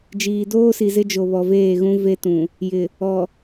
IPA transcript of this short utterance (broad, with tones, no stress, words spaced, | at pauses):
d͡ʒiː˨doː˦si˨zɪ˦ d͡ʒo˨βɔ˨veː˦˨ɣũ˦ ve˦tũ˨ | jɪ˨ | ɔ˨